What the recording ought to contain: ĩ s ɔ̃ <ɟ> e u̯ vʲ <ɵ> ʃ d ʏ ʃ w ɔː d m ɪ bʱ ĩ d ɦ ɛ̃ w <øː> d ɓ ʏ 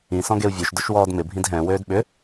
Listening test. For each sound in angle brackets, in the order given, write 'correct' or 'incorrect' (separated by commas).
incorrect, incorrect, correct